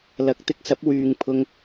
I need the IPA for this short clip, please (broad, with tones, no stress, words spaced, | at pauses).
lɐ˨˥k̚t̪ɪ˧k̚sɐ˨˥p̚ wyː˨ŋ pʰʊ˧ŋ